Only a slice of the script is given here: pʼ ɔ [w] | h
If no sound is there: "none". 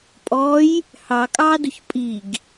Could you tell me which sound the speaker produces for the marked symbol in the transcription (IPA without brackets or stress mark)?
j